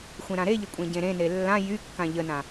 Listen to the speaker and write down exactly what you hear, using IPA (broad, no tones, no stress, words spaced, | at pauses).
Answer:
xʷẽɾãɾeʎə kʷʼẽɟẽɾẽne lːã jykːã ʎənã